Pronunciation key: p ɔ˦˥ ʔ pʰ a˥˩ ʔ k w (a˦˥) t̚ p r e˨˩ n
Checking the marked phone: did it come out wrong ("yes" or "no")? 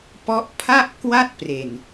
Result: yes